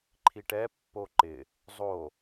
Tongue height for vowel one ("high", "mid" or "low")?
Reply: high